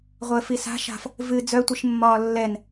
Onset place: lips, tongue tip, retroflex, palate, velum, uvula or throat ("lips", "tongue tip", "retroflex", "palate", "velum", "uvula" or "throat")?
uvula